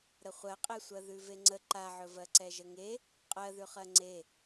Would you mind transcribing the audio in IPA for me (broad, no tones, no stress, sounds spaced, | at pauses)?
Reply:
ɾ ə χʷ ɜ qʼ e sʷ ɜ ð ʉ v e ŋ͡ǀ ə ǃ a ʕ ɵ v ɜ ǀ ɛ ʒ ə ŋ e | qʼ ɜ ð ʉ χ ɜ ŋ͡ǀ e